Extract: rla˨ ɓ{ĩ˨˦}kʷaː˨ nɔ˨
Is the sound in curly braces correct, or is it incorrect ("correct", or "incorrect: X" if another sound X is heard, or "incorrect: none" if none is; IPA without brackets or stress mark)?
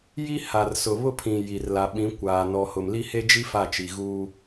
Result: correct